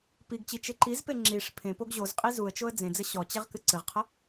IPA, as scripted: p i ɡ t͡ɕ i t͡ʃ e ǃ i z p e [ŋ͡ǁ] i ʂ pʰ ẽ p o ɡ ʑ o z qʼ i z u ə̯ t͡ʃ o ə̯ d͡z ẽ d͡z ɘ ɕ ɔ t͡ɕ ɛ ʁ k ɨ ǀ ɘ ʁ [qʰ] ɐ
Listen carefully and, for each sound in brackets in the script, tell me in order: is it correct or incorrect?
correct, correct

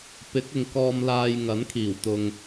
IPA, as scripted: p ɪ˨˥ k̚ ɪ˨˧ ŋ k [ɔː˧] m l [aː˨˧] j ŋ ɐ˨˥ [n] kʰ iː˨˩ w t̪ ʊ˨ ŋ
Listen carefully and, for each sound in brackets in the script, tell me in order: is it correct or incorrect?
correct, incorrect: aː˧, correct

